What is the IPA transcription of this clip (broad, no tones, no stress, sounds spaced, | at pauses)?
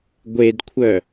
ɡʷ e d kʷʰ œ